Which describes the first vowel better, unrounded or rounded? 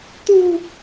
rounded